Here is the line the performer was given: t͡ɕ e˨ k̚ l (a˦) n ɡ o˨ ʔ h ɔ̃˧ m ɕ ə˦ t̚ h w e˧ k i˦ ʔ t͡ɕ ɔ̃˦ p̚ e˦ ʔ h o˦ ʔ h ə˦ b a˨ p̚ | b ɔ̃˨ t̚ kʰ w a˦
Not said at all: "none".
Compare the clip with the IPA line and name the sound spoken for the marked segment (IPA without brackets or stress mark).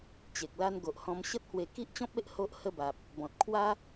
a˦